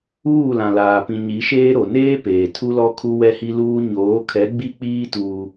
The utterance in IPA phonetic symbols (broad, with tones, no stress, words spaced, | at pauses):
uː˦˨lã˨laː˨pĩ˨ ɲi˨˦ʃeː˦ɾo˨ neː˦peː˨ tʰu˦lɔ˦ kʰu˦wɛ˦hi˦luː˦ ɲoː˨˦kʰɛ˨˦ ɡ͡bi˦k͡piː˦ tuː˦